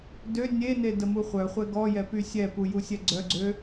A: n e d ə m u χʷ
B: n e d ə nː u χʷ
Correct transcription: A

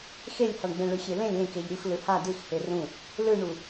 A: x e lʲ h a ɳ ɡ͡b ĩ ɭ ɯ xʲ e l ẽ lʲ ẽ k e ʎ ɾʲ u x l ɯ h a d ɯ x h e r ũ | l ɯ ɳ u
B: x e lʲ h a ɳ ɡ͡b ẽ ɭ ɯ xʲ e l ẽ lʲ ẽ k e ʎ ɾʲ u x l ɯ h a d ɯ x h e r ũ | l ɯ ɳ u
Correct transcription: B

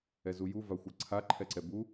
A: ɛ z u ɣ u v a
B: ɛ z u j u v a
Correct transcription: B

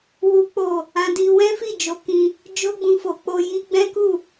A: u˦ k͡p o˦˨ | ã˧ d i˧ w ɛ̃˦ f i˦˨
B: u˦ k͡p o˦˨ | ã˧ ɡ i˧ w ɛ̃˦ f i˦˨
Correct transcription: A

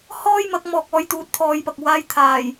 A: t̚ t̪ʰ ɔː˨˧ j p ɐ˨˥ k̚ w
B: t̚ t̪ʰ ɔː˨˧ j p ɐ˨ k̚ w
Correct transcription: B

